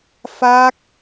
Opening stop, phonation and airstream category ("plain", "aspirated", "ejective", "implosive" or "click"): plain